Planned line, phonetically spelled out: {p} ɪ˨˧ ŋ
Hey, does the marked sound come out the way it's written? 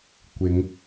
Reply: no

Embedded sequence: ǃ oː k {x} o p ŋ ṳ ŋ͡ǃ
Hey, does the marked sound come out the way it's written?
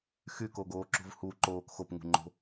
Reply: yes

